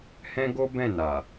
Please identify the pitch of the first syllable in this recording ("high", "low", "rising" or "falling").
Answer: high